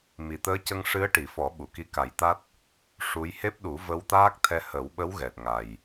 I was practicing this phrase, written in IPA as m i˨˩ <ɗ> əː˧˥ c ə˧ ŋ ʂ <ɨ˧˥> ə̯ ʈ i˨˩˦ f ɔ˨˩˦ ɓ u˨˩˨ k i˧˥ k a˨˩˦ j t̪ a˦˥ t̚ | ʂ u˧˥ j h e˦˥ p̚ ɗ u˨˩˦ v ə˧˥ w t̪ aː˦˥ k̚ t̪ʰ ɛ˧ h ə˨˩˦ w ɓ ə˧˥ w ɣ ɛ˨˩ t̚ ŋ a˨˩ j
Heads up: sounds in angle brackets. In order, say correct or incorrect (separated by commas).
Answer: incorrect, correct